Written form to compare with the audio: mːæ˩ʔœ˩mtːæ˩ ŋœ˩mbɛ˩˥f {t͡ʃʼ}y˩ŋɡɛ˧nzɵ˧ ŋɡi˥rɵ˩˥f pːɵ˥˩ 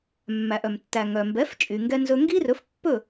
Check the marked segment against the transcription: correct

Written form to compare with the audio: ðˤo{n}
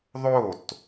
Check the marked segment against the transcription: incorrect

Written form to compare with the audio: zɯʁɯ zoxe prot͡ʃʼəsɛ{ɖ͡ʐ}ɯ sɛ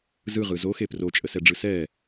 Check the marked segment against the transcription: correct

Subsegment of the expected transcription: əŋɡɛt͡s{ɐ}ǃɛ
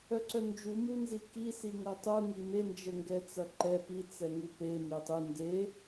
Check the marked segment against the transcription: correct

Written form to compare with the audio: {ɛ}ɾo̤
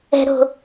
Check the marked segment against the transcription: incorrect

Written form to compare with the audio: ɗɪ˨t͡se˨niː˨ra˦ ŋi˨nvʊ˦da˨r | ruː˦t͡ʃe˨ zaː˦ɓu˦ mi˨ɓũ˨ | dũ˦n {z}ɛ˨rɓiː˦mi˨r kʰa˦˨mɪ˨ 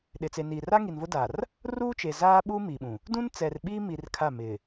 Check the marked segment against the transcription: incorrect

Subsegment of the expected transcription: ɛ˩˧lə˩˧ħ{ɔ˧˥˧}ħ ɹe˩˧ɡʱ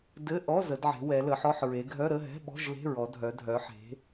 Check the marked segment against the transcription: correct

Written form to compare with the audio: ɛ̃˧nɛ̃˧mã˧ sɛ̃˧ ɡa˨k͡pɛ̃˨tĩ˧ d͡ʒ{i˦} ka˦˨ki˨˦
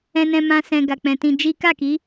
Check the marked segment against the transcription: correct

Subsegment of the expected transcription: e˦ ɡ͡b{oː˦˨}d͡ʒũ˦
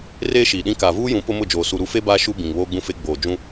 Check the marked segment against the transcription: incorrect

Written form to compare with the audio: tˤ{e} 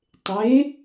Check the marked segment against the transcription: correct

